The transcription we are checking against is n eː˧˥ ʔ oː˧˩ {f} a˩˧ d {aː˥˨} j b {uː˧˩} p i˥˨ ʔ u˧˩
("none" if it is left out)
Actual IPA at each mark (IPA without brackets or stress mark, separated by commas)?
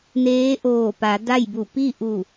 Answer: p, a˥˨, u˧˩